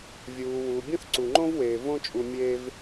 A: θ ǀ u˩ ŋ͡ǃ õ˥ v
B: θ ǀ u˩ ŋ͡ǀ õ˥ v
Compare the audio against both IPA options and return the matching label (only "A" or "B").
A